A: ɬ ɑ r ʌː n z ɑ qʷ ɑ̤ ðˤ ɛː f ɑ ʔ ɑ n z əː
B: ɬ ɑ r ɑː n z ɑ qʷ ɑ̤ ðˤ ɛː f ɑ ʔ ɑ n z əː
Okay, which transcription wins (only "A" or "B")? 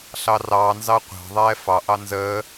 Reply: B